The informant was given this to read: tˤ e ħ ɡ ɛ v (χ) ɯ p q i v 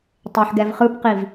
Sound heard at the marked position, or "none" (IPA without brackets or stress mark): χ